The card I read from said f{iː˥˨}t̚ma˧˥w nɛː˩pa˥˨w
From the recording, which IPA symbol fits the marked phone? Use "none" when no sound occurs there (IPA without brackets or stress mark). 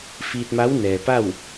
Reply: iː˧